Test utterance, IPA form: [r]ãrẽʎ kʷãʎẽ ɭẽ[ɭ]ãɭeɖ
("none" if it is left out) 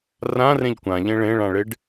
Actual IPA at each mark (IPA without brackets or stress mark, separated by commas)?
r, ɭ